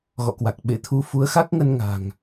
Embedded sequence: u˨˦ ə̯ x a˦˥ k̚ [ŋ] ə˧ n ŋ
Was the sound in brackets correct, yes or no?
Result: yes